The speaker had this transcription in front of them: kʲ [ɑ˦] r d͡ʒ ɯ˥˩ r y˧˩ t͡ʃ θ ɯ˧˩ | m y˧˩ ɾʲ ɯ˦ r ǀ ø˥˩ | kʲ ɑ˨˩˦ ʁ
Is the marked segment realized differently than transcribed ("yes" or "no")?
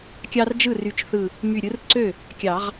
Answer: no